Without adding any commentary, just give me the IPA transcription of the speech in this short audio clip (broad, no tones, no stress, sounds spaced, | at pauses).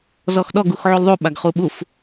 z ɔ x ɗ ɔ ɡ u x ʕ u l ðˤ u ɓ a ɡ χ u ɓ u f